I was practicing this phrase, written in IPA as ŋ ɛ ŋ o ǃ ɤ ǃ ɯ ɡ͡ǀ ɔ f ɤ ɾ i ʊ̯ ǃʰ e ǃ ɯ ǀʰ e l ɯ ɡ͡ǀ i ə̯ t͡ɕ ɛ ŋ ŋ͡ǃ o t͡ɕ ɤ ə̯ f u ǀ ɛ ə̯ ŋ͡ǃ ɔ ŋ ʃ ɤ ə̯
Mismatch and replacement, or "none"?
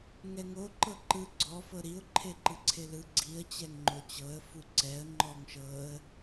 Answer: none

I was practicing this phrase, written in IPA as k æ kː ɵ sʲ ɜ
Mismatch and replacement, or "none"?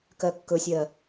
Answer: æ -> ɜ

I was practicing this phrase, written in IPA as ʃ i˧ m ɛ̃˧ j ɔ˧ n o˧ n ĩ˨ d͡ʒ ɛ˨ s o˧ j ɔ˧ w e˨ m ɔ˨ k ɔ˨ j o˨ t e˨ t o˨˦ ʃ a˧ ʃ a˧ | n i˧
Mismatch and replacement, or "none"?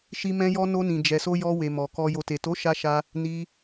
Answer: none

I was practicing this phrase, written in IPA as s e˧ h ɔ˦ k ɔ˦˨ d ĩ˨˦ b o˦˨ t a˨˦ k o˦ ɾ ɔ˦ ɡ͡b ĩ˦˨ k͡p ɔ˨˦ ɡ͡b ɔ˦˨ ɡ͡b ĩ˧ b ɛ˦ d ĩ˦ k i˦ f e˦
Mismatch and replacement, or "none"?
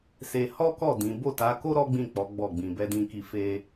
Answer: none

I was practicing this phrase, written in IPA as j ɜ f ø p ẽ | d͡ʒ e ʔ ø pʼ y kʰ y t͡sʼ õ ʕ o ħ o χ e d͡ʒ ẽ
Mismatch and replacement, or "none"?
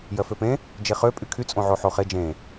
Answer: ʔ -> χ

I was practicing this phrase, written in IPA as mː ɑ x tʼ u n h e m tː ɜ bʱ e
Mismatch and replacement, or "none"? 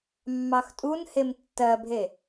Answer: none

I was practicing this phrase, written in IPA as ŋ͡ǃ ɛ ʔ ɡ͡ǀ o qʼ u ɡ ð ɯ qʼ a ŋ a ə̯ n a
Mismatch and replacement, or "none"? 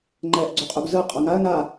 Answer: ð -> z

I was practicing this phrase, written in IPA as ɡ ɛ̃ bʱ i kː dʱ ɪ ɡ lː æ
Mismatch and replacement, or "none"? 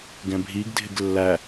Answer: kː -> ɡ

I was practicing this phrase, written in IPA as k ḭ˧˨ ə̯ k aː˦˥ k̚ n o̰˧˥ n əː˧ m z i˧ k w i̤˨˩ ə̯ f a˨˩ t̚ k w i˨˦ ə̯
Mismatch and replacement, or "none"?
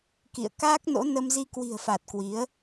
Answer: əː˧ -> ə˧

